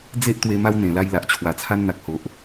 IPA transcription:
d͡z e˦ ʔ t̪ w e˧ m a˧ w n̪ ẽ˨˩ l a˧ j l a˨ ʔ t͡ɕʰ w a˨˩ t͡sʰ a˧ n n̪ a˨ k̚ h o˨ ʔ

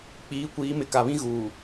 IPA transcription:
k͡p iː˨˦ kʷ iː˨˦ m ɪ˨ k a˨ β ĩ˦ ɣ uː˨

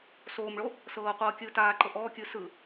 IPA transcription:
s oː m ɭ o | s ɤː qʷ ɤː kʲ ɯː t aː ǃ ɤ ʔ ɔː kʲ ɯː s ɯ

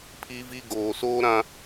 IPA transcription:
pʰ i˦ v i˦ ɡ oː˨ s oː˦ ɾ ã˦

